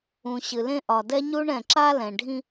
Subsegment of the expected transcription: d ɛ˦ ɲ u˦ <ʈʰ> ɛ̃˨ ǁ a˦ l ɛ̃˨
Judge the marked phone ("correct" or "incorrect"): incorrect